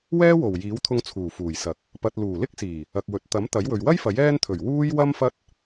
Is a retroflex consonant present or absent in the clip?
absent